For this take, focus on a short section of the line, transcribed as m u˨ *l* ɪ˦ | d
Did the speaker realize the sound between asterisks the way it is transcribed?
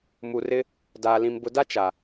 no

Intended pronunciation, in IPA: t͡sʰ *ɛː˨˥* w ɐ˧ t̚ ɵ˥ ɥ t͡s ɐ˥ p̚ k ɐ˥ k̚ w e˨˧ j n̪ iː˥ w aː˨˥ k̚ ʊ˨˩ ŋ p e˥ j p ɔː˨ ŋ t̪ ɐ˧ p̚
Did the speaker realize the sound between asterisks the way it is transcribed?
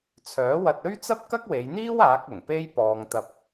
no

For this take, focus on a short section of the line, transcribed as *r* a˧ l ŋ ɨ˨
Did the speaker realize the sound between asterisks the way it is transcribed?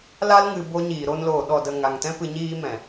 no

